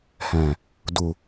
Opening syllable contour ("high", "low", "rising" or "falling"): low